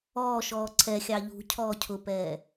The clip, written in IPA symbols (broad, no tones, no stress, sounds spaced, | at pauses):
ɔː ʃ ɔː ǀʰ ɛ xʲ ɑ ʎ ṳ cʰ ɔː cʰ ʊ p ɛː